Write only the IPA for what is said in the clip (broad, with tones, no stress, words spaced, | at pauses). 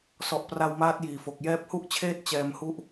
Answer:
sɔ˨˩ʔ pra˧wmaː˦˥t̚jiː˨˩fo˨˩k̚ jɛː˦˥p̚hu˥˩ʔt͡ɕʰeː˥˩t̚ t͡ɕɛː˧m hu˦˥ʔ